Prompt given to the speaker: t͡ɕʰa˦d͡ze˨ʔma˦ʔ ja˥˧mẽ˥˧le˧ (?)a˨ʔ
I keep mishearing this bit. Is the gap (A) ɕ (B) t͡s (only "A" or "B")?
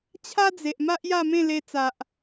B